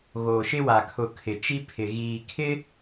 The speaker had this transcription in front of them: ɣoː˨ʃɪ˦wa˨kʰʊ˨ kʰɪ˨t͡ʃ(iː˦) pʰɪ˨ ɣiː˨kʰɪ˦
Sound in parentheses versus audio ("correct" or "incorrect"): incorrect